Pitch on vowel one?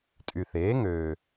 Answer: low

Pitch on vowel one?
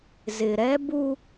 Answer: low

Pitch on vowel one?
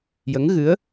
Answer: rising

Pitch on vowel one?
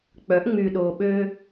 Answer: rising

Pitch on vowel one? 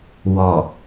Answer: low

